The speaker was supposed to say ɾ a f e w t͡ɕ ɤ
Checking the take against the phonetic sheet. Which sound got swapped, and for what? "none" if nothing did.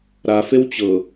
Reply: none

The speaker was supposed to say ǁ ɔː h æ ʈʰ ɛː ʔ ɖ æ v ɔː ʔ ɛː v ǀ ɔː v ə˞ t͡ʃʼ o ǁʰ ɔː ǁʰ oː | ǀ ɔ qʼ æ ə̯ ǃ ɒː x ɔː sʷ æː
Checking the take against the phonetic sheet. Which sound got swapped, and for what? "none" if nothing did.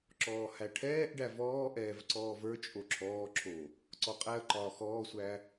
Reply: none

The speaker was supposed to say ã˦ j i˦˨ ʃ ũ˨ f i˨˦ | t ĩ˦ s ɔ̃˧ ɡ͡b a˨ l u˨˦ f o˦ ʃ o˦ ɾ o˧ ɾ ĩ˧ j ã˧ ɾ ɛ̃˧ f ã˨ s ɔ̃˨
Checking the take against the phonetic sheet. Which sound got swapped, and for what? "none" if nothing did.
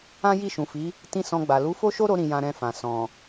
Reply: none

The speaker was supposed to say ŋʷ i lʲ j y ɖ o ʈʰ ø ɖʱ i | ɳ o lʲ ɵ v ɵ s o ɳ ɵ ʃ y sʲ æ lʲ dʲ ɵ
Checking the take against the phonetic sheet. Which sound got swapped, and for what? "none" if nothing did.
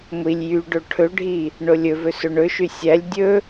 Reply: ø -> ɵ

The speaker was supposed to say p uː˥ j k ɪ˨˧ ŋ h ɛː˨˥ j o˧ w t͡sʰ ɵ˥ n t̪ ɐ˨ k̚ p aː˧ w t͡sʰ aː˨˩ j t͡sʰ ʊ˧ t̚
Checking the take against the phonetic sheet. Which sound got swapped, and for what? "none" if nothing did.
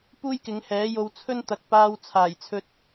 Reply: ʊ˧ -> ɵ˧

